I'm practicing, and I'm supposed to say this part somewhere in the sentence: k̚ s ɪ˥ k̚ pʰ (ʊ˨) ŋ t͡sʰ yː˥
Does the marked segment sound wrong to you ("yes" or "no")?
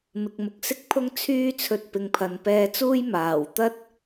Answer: yes